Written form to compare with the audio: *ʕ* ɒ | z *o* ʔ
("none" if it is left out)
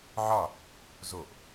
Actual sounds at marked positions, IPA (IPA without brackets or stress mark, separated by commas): ʕ, o